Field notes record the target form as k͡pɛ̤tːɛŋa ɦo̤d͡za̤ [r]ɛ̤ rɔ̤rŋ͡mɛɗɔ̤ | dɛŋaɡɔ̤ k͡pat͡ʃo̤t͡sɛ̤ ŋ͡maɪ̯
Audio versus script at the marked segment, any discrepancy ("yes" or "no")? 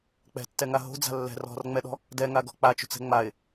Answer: yes